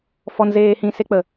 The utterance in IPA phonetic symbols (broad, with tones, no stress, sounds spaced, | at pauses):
f ɔ˧ n z eː˧ h ĩ˧ s e˦ k͡p ə˨